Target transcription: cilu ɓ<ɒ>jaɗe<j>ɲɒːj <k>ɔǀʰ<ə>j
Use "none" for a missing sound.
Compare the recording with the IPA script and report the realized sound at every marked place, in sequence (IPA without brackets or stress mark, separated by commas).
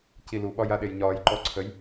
ɒ, j, ǃ, ə